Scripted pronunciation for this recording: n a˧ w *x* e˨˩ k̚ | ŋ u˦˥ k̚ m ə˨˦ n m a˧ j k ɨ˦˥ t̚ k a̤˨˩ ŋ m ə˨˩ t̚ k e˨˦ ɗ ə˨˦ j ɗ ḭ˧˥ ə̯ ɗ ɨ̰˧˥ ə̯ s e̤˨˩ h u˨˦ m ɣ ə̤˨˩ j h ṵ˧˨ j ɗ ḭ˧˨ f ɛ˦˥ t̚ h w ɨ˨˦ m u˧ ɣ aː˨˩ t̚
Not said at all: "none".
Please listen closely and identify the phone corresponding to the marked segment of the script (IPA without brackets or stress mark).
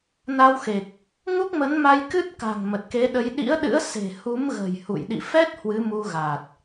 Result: x